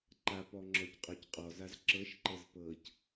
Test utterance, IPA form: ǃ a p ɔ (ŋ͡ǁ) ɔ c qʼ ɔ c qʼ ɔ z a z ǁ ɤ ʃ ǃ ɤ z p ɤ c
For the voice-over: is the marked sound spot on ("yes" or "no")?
yes